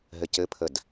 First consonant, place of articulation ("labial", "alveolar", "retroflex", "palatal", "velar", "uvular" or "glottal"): glottal